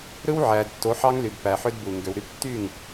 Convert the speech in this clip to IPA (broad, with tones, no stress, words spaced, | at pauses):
ɾɯ˦wʕæ˨d tːo˨˦ħɑ˦ŋly˨dpæ˨ ħø˦dbu˨ ŋɡø˨wɾy˦p tːy˦˨ŋ